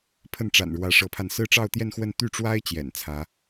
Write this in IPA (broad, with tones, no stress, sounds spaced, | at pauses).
pʰ ə˥˩ n ʈ͡ʂ a̰˨˩ n ɻ w ä˧˥ ʂ ɤ˧˥ pʰ a˧ n s ɹ̩˥˧ ʈ͡ʂ ɑ˥˧ ʊ̯ t̪ j ɛ˥˧ n x w ə˥˧ n t̪ y˥˩ ʈ͡ʂ w a˥ ɪ̯ t͡ɕ j ɛ̰˨˩ n t͡sʰ ä˧˥